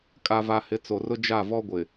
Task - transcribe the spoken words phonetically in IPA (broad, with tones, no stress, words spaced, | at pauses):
kʼa˨va˨ hɪ˨˦t͡so˨rʊ˦ d͡ʒa˦˨vɔ˦ɡʷɪ˨